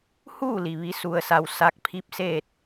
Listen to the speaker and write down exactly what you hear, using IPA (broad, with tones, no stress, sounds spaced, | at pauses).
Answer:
h uː˥˨ l i˩ ʋ i˩˧ s u˧ ə̯ s a˧ w s a˧˥ k̚ pʰ i˥˨ p̚ s eː˥˨ t̚